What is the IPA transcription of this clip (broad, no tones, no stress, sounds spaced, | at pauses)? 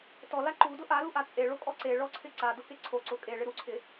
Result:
t ɔ l a ǃ u d ʊ ʔ a l u ʔ a t͡sʼ e ɭ o kʼ ɔ ǀ e ɭ ɔ ǀʰ ɪ ǀ a d ʊ k e ǀʰ o ǀ ʊ kʼ e ɭ ɪ ɾ u ǀʰ ɪ